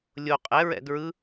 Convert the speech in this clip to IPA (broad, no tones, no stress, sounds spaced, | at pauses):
lʲ o qʼ ɛ ɹ ɛ̰ d ɹ ɯ